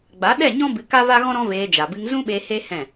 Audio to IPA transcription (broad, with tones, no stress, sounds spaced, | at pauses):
ɡ͡b a˨˦ ɗ ɛ˦˨ ɲ ɔ̃˦ b ɨ˧ k a˦ v a˦ ɣ ɔ̃˦ ɾ ɔ̃˦ v eː˧ d͡ʒ a˨ b ɨ˧ ŋ z ũ˦ ɓ e˧ h e˦ h ɛ̃˦˨